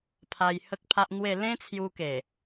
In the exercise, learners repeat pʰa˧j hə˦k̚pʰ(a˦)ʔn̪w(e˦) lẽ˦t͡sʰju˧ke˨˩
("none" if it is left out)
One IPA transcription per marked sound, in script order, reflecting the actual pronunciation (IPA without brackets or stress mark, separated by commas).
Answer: a˦, e˥˧